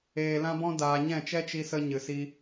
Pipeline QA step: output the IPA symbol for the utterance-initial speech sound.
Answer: eː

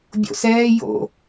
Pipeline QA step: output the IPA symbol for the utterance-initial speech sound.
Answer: bʲ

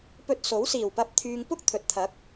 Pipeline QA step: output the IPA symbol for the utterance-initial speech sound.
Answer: p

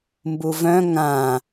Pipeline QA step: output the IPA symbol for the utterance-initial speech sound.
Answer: m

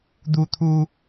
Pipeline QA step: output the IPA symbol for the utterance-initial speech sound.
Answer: d̪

